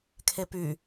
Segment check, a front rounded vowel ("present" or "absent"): present